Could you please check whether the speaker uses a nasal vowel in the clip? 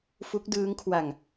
no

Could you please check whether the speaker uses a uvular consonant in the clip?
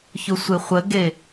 yes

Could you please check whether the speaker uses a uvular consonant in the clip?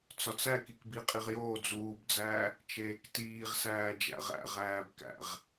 yes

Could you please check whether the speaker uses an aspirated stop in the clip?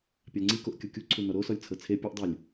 yes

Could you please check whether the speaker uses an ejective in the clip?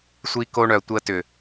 no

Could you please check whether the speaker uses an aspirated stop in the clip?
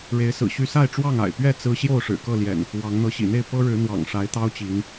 no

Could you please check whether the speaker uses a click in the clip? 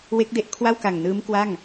no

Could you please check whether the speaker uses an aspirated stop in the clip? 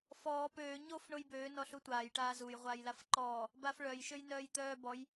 no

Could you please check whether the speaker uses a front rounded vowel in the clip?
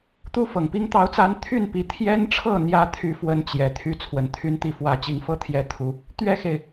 yes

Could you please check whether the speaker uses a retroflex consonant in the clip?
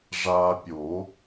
yes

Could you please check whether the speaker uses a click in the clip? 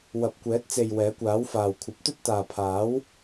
no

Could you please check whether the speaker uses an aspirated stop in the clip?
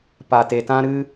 no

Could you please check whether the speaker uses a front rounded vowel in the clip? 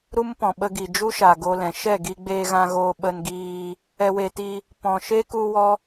no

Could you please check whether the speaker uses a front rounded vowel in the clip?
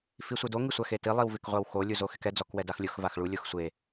no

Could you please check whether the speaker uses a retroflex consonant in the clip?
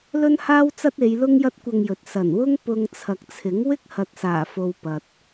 no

